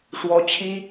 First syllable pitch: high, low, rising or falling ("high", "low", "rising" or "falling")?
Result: high